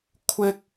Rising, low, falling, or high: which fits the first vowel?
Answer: high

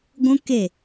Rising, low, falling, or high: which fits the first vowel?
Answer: high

